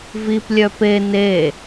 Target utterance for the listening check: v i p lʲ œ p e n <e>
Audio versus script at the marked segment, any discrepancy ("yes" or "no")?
no